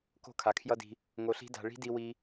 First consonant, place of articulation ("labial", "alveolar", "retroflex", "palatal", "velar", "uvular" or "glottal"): velar